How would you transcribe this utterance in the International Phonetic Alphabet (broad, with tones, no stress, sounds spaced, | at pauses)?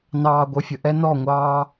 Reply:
n ɑː˨ ɡʷ ə˨ fʲ ə˨ ʔ ɛ˦ n ɔ˦˨ ŋʷ ɑː˦